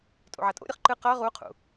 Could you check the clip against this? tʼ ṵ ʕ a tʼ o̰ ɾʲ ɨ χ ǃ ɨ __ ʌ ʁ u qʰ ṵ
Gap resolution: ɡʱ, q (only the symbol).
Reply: q